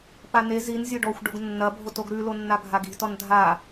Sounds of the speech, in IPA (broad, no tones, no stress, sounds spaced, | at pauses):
p a n e z i n zʲ o ɖ ɔ xʷ ɖ o ɡ nː ɐ bʱ o t o ɡ ɾ ʉ l o nː a ɡʱ a ɡ i̤ t ɔ n dʱ a